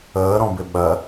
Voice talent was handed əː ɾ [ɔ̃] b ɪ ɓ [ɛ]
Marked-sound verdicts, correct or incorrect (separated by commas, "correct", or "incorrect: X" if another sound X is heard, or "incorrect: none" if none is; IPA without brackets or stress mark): correct, incorrect: ɜ